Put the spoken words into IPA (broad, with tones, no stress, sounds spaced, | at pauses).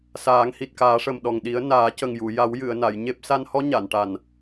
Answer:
s aː˨˩˦ ŋ h i˨˩ t̚ k aː˨˩˦ ʂ ə˨˩ m ɗ ɔ˨˩ ŋ ɗ i˨˩˦ ə̯ n aː˨˩˦ c ə˨˩ ŋ j u˨˩˨ j a˨˩˦ w j ɨ˨˩˨ ə̯ n a˨˩˨ j ɲ e˦˥ p̚ s a˧ n h ɔ˧˥ ɲ a˨˩˨ n ʈ a˨˩ n